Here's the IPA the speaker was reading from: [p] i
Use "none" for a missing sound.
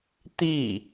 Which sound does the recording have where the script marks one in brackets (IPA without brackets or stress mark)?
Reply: t̪